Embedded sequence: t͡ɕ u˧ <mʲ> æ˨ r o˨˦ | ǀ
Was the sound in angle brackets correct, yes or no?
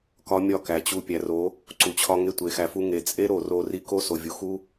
no